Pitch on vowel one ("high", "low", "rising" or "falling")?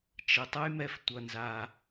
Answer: low